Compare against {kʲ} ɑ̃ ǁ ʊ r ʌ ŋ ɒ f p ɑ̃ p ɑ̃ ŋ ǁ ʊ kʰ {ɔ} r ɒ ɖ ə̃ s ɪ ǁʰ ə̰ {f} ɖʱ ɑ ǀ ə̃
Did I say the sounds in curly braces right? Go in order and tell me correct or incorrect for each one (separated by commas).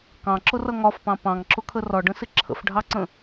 incorrect, incorrect, correct